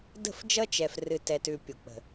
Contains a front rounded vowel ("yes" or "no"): no